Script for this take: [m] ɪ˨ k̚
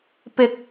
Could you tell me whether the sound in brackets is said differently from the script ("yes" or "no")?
yes